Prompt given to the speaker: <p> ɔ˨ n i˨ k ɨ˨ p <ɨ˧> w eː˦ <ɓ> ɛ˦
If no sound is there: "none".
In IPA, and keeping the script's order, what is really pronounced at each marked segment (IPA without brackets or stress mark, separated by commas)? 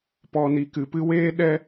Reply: p, ɨ˧, ɗ